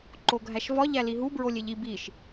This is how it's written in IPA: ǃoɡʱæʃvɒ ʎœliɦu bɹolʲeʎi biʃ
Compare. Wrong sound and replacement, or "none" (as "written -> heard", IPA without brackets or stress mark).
œ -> æ